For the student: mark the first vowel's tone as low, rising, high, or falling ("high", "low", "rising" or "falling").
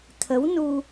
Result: rising